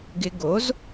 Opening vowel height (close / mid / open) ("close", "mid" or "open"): close